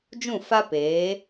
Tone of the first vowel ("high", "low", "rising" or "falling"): falling